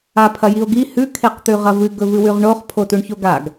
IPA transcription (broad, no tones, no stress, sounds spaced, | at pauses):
a pʰ ɐ j i o̯ ɡ i h ʉ kʰ e q t̪ ʉ ʁ ɐ v ɨ ɡ ɵ v ɨ w ʉ ʁ ɳ o χ pʰ o t u ɳ ç o ɡ a ɡ